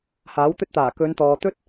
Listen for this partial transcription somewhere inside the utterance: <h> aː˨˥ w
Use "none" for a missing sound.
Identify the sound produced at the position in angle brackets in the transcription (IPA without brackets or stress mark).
h